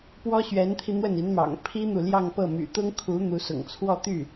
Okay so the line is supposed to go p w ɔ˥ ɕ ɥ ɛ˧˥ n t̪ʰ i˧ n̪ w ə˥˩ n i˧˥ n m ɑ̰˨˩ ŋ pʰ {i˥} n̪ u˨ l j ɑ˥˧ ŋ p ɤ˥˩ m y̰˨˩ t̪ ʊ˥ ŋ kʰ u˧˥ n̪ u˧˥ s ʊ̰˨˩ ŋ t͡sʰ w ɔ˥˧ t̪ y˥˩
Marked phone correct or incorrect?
correct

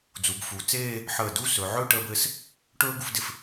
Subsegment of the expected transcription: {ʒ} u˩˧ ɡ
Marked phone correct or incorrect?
incorrect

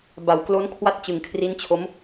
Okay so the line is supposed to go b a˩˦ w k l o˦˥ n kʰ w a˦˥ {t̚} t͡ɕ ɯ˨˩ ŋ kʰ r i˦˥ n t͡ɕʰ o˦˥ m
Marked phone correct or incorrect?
correct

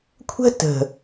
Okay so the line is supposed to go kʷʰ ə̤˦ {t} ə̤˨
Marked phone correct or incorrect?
correct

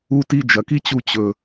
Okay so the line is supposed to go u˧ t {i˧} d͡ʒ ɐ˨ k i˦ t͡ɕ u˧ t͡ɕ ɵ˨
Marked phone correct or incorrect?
correct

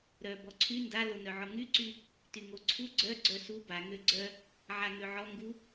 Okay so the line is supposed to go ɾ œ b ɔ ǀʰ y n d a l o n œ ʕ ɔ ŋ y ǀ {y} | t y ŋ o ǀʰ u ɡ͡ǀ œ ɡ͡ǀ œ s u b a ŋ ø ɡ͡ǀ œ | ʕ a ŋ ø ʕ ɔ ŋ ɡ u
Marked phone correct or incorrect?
correct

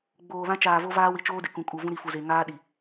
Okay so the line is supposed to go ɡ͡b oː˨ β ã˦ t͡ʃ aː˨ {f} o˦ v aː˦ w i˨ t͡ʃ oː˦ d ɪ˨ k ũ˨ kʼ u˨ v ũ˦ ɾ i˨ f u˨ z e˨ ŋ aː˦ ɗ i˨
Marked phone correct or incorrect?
incorrect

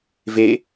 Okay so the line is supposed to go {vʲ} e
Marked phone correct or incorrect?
incorrect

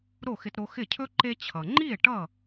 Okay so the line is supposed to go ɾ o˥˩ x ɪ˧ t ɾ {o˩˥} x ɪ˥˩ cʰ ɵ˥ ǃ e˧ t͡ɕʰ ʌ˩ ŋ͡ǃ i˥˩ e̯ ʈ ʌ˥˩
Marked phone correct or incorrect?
incorrect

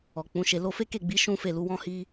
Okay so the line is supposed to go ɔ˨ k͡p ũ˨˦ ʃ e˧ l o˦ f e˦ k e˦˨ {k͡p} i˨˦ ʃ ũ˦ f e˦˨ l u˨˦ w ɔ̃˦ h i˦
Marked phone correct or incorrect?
incorrect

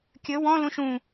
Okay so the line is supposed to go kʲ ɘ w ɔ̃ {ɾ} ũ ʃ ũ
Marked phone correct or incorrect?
incorrect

